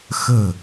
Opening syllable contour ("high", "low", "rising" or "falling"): low